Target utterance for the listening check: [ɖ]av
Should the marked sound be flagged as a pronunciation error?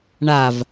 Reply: yes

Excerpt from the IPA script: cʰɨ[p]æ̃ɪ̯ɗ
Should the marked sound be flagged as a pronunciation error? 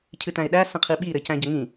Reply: yes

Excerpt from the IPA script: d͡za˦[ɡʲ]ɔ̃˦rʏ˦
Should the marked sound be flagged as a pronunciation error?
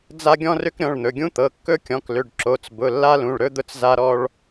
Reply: no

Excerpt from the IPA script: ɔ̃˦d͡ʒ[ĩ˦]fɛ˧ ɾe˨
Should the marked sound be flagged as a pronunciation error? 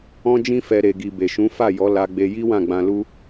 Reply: no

